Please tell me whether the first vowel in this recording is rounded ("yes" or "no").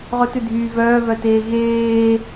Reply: yes